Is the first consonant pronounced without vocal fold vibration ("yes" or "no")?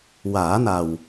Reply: no